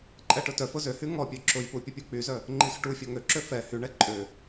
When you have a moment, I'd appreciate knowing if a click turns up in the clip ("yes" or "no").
yes